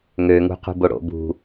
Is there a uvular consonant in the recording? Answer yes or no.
yes